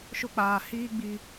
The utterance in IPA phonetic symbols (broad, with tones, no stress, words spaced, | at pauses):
ʃʊ˦k͡paː˨hiː˦ɡ͡bi˨